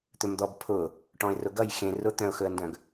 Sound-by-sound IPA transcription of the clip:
t̪ ɵ m d̪ ɔ b pʰ ʊ | ʈ ɔ̃ ɪ̯ r ʊ ɡ ʌ j x ẽ r ʊ t̪ œ̃ ʊ̯ x ɵ ə̯ n d œ̃ ɡ

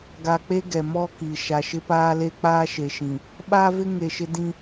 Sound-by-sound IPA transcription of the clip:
ɡ a˨ k͡p e˦ ɡ ɛ˨ m ɔ˦ k i˨ ʃ a˨ ʃ ɪ˦ p aː˦ l e˦ k͡p aː˦ ʃ e˨ ʃ ĩ˨ | ɓ aː˦ v ɪ˦ ŋ e˨ ʃ ɪ˦ d ĩ˦

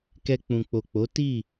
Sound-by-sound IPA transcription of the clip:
k ɛ˧ k͡p ũ˨ k͡p o˨ k͡p o˨˦ t i˦˨

